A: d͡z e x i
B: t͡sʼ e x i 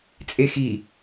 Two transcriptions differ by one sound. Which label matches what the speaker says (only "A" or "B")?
B